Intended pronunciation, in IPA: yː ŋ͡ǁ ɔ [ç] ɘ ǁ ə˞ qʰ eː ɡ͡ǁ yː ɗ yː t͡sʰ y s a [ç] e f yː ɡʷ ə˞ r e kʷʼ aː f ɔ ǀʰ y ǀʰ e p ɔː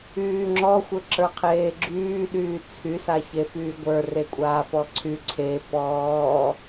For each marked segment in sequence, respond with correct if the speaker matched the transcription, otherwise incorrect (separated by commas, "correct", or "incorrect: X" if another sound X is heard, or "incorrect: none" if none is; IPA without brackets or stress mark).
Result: incorrect: xʷ, correct